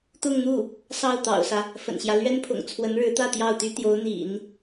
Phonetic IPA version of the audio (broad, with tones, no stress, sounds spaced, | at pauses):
t̪ ʊ˥˧ ŋ n̪ u˥˩ | s ɑ˥˩ ʊ̯ t̪ ɑ̰˨˩ ʊ̯ s ä˦ | f ə̰˨˩ n ɕ j ä˦ l ɥ ɛ˥ n pʰ ʊ̰˨˩ ŋ t͡sʰ w ə˧˥ n ɻ ɻ̩˧˥ t̪ ä˥˧ t̪ j ɑ˥˩ ʊ̯ t̪ y˥ t̪ j o˧˥ ʊ̯ n̪ ḭ˨˩˦ n